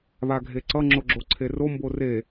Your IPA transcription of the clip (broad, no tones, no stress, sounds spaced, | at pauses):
β a ɡʱ e ǀ ʌ ŋ͡ǁ o ɡ͡ǁ o ǀʰ e r o m b o r e